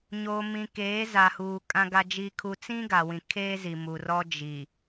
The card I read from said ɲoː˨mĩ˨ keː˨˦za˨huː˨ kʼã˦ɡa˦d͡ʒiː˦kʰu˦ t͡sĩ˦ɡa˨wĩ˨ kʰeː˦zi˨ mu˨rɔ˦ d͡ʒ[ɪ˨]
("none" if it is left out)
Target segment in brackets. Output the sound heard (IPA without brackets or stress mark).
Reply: i˨